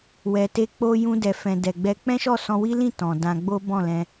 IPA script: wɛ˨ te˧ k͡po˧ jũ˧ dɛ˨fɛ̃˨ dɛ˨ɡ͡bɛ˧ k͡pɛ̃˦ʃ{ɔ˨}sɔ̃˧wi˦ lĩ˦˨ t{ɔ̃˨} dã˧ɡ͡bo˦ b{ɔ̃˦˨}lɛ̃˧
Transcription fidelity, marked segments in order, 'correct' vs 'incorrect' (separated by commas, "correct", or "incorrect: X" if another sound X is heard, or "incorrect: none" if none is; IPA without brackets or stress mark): incorrect: ɔ˦˨, correct, correct